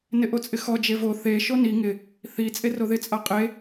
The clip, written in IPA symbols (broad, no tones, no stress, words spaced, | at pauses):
nɪʔot͡sʼɪxɔ d͡ʒevo θe ʃoni ŋɪ | θi t͡sʼeroðɪ t͡sʼaqʼe